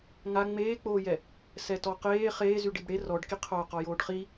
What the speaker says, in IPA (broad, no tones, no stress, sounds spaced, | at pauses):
ŋ a ŋ͡m eː k͡p oː j ɛ | s ɛ t ɔ q eː χ eː z y ɖ i b ɽ e r ɔ ɖ k i qʰ oː q ɔ j oː ɖ χ i